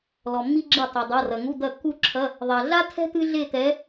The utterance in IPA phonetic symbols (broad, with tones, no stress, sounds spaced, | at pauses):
l ɔ˨ mː i˥ ɡ͡ǁ e˥˩ tˤ e˨ dˤ ɐ˧˥˧ r ɐ˨ ŋ u˧˥˧ d̪ ɐ˥˩ kː u˥˧ ǁʰ ɐ˧˥˧ | ðˤ ɛ˨ ɮ a˥ tʰ ɛ̤˥ t̪ ɨ˥ ɮ e˥˧ t̪ ɛ˧˥